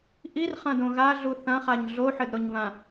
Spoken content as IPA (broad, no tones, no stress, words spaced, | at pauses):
ʔirχɐ̃dõ ɣaɮu θɐ̃χaɲ ɮoħɘdɾoɲβã